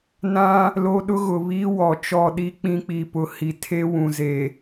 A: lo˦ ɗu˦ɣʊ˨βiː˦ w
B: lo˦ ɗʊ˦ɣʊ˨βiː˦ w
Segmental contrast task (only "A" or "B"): B